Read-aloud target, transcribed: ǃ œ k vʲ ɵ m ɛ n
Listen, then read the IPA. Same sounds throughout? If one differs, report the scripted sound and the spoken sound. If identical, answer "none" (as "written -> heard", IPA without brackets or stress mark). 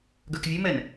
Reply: ǃ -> ɡ